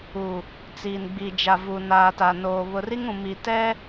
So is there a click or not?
no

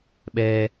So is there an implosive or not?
yes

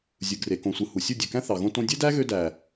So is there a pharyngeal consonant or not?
no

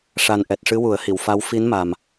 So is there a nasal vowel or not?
no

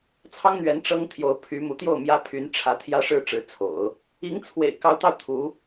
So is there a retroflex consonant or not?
yes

